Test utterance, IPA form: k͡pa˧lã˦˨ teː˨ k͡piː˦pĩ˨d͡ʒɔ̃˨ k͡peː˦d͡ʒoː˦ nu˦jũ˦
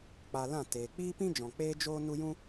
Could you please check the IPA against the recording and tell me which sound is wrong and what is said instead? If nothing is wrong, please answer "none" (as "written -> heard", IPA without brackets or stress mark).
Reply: ĩ˨ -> ĩ˦